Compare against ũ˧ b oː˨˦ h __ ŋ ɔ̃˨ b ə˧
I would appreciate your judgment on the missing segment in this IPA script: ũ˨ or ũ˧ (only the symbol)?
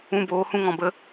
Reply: ũ˧